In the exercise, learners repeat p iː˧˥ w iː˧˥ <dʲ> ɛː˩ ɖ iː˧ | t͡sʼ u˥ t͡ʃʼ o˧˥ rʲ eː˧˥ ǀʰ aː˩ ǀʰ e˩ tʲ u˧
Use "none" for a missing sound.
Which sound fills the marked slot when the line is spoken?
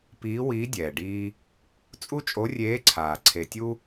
dʲ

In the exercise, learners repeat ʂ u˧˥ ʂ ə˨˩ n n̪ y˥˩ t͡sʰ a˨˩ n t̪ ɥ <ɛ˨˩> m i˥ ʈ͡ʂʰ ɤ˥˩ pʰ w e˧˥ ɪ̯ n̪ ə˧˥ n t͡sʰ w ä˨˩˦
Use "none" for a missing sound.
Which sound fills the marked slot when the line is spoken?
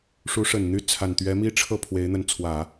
ɛ˧˥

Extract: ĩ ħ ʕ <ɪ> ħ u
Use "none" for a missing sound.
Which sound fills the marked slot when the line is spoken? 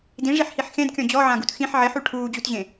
ɪ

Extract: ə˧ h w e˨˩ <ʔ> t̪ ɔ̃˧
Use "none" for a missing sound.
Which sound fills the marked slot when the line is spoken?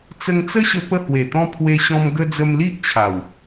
none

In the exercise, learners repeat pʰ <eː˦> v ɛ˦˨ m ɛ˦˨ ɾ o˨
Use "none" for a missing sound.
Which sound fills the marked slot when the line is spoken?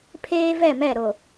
eː˦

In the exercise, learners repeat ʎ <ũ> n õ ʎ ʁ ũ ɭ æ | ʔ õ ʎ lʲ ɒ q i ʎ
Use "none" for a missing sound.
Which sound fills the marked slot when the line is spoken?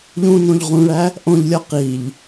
ũ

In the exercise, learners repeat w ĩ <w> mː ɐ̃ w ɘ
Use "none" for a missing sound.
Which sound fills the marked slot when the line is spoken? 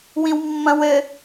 w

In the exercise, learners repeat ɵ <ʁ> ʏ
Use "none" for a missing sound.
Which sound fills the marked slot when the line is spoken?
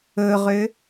ʁ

